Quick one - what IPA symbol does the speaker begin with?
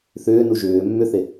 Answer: θ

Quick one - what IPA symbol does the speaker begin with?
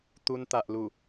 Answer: t̪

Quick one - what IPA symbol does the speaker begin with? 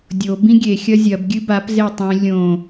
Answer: dʲ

